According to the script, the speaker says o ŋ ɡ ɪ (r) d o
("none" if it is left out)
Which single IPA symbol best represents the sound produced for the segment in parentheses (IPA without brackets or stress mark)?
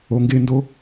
n